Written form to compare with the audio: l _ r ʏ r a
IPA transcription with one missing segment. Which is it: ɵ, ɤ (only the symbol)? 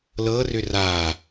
ɤ